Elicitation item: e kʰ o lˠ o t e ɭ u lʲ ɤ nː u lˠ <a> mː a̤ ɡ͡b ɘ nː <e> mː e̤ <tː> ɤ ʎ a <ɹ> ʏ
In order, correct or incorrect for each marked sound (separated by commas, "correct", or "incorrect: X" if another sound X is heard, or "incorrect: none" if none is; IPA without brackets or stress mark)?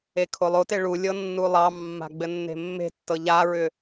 incorrect: ɑ, incorrect: e̤, correct, correct